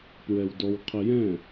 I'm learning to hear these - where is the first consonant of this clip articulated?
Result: lips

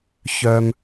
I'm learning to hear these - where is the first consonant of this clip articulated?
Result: palate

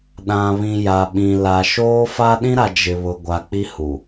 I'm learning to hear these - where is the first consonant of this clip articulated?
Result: tongue tip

